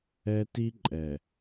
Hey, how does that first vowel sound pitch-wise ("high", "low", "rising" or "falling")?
high